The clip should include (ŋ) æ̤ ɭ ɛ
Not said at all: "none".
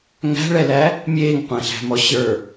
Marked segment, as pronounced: ŋ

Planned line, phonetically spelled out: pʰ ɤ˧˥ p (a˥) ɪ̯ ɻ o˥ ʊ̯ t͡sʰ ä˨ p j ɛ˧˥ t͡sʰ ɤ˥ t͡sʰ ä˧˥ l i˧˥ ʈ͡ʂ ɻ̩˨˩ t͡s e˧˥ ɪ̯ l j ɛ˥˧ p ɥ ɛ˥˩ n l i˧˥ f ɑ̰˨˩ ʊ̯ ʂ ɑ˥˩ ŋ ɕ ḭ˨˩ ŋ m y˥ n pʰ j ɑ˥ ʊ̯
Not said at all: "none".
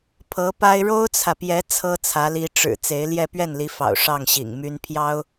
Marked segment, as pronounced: a˥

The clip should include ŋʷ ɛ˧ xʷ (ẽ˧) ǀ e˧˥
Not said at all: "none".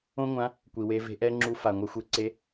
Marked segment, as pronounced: e˧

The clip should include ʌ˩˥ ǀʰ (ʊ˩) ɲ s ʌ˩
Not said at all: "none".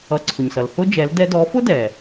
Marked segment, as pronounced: ʊ˩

